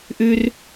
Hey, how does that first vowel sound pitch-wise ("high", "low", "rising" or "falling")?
high